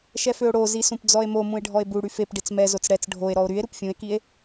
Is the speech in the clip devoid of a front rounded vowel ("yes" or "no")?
no